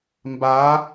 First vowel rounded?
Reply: no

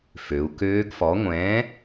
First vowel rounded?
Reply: yes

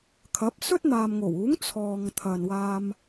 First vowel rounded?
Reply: no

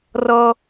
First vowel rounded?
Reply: no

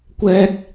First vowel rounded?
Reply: no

